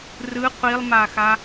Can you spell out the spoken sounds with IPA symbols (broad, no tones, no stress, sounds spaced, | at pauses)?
r ɯ qʷ i lˠ m a x a